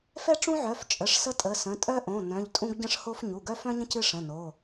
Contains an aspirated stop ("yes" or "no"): no